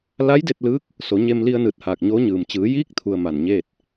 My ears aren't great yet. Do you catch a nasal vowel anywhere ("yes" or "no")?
no